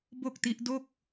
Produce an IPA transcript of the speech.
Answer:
bo˥˩k̚ti˦˥ʔ do˥˩k̚

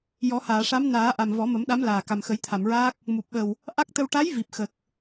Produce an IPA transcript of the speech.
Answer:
jɔ˨˩˦haː˨˩˨ ʂa˧˥mnaː˨˩˦ʔa˨˩m vɔ˨˩˦mə˨˩˦mɗa˧˥mlaː˨˩ ka˨˩mxə˨˩˦jt̪ʰa˨˩˨mɹaː˦˥k̚ | mu˨˩p̚ɓə˨˩w | ʔa˦˥k̚t̪ə˧w ʈa˧˥j vi˨˩p̚xə˨˩k̚

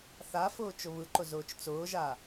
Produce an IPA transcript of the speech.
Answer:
θafʊː t͡ʃʊβɯǃʊ zʊːt͡ʃt͡sʊːʒa

